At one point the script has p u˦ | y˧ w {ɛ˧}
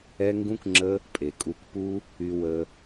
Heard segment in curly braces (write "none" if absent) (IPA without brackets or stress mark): ə˧